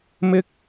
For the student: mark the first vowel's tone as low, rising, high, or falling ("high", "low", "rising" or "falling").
high